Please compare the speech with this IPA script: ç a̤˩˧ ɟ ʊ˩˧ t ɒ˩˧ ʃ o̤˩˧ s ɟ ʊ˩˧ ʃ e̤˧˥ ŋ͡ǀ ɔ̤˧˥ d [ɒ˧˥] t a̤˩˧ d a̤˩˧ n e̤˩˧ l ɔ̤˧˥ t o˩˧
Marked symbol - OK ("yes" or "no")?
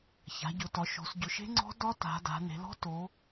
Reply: yes